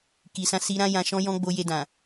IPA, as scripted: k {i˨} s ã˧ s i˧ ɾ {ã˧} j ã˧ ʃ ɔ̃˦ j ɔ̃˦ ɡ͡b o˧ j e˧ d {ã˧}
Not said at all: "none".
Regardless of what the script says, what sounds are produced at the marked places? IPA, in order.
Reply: i˨, ã˦, ã˨

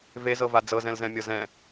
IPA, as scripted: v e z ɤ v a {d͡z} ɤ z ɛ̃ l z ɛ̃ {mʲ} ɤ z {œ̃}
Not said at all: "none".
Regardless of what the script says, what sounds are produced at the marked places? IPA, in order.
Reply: d͡z, mʲ, ɛ̃

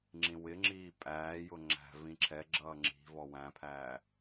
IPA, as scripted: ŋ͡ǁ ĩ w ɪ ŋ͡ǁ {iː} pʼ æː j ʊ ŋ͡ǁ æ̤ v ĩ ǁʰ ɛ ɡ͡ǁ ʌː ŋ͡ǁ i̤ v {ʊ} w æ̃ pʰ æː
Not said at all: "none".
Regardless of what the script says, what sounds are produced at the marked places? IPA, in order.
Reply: iː, ɔ

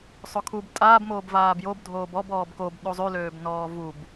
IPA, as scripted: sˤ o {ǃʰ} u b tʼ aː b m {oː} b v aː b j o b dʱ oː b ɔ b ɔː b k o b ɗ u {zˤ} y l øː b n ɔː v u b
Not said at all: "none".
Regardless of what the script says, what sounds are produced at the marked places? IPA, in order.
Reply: kʰ, oː, zˤ

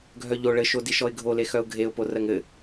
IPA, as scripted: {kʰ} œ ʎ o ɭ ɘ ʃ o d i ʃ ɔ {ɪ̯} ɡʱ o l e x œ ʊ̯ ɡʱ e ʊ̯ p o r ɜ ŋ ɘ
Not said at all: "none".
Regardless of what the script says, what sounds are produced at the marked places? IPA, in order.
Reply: ɡʱ, ɪ̯

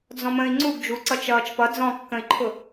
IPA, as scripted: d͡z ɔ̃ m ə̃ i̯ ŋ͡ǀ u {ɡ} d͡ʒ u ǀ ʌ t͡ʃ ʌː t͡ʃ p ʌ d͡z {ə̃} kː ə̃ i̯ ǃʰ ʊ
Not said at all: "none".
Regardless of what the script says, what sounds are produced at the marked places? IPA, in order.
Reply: ɡ, ɔ̃

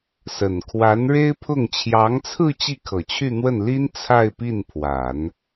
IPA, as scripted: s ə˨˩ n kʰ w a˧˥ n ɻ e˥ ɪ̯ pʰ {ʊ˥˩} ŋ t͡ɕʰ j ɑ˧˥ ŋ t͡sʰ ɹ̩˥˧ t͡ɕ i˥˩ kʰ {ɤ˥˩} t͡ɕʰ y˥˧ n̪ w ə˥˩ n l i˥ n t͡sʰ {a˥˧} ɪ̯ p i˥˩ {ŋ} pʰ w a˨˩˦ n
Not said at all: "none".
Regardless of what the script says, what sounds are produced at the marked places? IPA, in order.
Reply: ʊ˥˩, ɤ˨˩, a˥˧, n

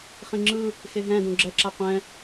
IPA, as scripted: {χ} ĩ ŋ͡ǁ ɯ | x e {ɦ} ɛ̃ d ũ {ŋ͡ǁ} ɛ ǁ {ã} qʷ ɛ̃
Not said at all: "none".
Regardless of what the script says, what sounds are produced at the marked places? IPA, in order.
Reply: χ, ɦ, ɡ͡ǁ, a

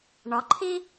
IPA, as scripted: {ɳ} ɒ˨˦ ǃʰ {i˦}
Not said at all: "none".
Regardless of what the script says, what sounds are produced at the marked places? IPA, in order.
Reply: ɳ, i˦

